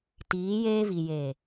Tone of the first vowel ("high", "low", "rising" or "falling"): rising